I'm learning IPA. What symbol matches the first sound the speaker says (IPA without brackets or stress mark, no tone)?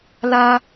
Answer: l